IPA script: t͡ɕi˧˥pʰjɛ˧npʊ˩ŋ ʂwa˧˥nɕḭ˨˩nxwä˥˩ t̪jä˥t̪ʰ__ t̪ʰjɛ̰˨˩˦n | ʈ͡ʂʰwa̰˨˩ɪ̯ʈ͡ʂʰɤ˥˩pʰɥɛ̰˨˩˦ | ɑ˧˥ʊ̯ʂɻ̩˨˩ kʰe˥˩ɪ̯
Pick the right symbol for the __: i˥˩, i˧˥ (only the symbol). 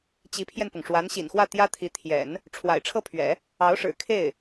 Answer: i˧˥